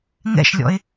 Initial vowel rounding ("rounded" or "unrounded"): unrounded